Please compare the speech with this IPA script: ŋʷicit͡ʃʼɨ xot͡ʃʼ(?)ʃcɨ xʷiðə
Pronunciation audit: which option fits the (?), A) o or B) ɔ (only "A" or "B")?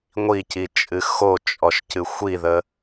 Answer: B